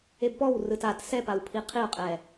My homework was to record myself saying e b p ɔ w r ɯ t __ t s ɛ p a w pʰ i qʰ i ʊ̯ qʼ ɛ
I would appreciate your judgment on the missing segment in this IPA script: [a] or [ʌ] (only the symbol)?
a